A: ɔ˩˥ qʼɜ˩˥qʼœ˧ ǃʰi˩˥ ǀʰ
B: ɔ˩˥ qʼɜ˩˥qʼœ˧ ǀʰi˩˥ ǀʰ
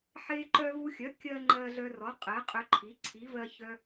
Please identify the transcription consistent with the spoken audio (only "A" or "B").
A